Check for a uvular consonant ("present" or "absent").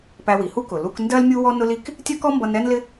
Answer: absent